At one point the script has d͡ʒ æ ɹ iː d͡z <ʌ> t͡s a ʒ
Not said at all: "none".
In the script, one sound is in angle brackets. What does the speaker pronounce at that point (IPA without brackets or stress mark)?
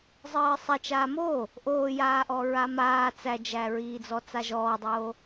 ɔ